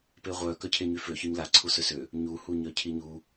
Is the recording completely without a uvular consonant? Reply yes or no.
no